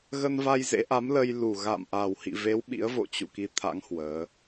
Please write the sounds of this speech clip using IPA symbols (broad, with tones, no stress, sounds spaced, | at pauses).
ɣ ə˧ n v a˧ j z ḛ˧˥ ʔ a˨˦ m l ə˧ j l u˨˩ ɣ a̰˧˨ m ʔ a˨˩ w h ḭ˧˨ v e˨˦ w ɓ ḭ˧˥ ə̯ v o̰˧˨ t͡ɕ ṵ˧˨ k i˨˦ t̪ʰ a̰˧˥ ŋ h w əː˨˦